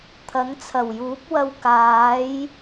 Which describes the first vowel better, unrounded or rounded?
unrounded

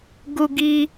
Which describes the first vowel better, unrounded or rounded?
rounded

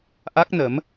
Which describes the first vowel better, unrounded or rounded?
unrounded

